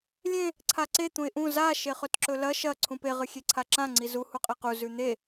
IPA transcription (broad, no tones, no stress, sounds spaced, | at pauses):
lʲ ẽ | ǀʰ a ǀ e t̪ ũ ɪ̯ ʔ ũ z a ʃ e χ ɵ t ǁ ɵ l ɐ ʃ ɐ ǀʰ ũ p e ʁ ɨ xʲ e ǀʰ a ǁ ã ŋ͡ǀ i z u h u qʼ e q u z ʉ n̪ e